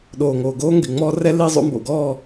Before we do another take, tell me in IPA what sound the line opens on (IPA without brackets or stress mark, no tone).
ɗ